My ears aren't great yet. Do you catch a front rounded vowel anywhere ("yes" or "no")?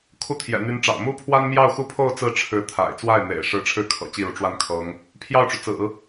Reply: yes